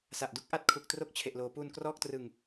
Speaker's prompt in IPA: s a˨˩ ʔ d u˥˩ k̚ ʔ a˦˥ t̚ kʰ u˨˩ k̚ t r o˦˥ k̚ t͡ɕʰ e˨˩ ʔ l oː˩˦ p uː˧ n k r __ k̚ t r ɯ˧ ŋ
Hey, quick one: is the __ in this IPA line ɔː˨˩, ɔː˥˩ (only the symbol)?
ɔː˥˩